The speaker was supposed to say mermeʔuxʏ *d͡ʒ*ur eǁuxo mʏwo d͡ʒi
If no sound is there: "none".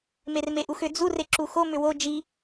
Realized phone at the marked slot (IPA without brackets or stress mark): d͡z